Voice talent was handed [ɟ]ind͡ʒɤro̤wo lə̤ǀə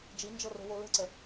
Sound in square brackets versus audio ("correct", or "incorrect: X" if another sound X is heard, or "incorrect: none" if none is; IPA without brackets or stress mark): incorrect: d͡ʒ